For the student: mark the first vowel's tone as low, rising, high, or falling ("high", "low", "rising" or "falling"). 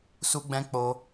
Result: high